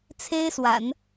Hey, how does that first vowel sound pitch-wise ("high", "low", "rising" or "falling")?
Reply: high